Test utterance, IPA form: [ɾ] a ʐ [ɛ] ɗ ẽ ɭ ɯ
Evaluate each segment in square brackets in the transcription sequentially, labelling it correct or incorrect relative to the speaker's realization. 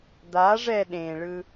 incorrect: d̪, correct

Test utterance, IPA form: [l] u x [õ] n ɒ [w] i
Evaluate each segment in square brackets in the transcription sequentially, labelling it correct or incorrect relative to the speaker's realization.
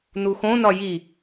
incorrect: n, correct, incorrect: j

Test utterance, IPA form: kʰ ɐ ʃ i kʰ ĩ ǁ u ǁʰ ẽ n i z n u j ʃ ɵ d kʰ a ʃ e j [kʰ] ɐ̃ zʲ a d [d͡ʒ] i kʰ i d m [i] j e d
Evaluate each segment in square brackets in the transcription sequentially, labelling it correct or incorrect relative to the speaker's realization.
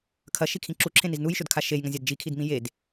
incorrect: ŋ, correct, incorrect: ĩ

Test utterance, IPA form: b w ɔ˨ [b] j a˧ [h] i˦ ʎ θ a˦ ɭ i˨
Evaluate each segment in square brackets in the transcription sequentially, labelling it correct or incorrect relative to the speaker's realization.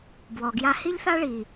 incorrect: ɡ, correct

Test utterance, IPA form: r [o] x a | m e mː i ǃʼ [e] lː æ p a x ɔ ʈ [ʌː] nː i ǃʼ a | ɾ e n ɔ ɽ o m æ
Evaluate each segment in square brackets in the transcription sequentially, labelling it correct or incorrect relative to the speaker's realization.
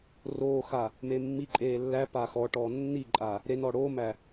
incorrect: oː, incorrect: eː, incorrect: ɔː

